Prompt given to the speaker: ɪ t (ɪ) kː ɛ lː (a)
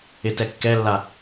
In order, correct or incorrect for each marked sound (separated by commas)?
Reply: incorrect, correct